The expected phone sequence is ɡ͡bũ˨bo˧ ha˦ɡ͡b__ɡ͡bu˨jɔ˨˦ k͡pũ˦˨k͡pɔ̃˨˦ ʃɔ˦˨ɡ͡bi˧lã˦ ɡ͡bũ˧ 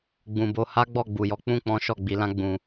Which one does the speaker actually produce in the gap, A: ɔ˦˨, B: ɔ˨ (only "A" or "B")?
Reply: A